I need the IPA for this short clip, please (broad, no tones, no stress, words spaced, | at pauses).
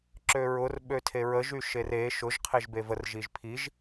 ǁøɹʊr ɓøtʰeɹəʒ yʃere ʃʊʒ qʰeʒbevər ʒiʒpʰiʒ